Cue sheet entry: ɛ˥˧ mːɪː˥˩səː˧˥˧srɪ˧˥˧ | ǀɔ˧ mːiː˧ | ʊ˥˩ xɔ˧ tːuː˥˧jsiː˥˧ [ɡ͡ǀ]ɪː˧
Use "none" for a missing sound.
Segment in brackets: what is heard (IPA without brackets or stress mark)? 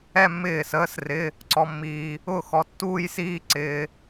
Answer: ǀ